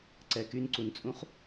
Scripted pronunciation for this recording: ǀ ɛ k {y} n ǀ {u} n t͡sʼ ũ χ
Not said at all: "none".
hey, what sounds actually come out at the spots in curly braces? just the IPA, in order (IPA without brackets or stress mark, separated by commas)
y, u